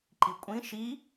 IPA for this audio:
ǃikʷʼĩ ʃi

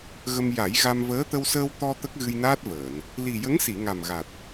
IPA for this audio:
ɣə˧m ja˨˩˦jɣa˧mvəː˧˥ t̪ə˧wsəː˧w t̪ɔ˧ t̪ə˦˥k̚ɣɨ˧jnaː˦˥t̚vəː˨˩˨n | li˨˩jə˧˥ŋsi˨˩˨ ŋa˨˩mɣa˨˩t̚

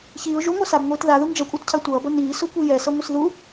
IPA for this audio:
çiːʊ̯ ʒuŋʷa sabŋʷiːt ðaðuŋ d͡ʒʌkʷʼatcʰa tʷʌːbʌ niːsokʷi jɛsʌŋʷɯs ðu

